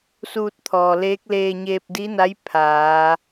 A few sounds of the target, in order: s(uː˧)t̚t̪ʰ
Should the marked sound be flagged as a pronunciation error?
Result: no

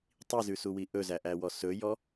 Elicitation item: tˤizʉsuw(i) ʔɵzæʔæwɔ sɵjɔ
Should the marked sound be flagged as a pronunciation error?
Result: no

